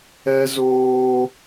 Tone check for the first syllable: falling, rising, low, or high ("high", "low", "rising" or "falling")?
high